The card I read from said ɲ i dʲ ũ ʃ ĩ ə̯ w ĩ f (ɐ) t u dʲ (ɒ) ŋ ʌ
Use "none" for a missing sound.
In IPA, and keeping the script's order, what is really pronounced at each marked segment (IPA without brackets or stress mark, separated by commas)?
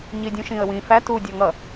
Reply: æ, ɒ